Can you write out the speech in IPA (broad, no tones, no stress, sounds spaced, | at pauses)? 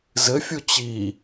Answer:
z ɘ fʲ u t͡ɕ i